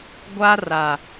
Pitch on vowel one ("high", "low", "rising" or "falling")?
high